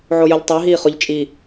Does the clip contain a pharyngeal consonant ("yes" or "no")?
yes